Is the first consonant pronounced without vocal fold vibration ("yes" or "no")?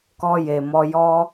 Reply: yes